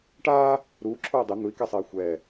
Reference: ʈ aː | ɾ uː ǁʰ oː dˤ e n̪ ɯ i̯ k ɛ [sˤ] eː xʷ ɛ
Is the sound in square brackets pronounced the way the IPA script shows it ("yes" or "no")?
yes